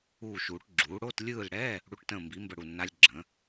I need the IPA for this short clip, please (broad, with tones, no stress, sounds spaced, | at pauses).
uː˦˨ ʃ uː˨˩˦ ʈ ɡ͡ǁ uː˩˥ ɽ o˧˥˧ t lʲ ɯː˦˨ l ɽ ɛː˧˥˧ | ɽ u˧˥˧ ʈ t ə̃ː˦˨ m b i˩˥ m b ə˦˨ ɽ u˦˨ nː a˦˥ lʲ ɡ͡ǁ ə̃ː˩˥